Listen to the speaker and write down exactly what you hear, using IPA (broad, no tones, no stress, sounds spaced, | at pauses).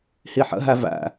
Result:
h i ħ ə̰ ɦ æ v æ̰